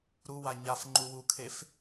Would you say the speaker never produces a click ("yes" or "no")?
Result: no